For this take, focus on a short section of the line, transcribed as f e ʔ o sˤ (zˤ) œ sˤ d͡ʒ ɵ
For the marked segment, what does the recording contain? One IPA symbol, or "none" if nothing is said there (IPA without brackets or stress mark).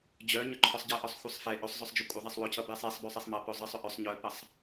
zˤ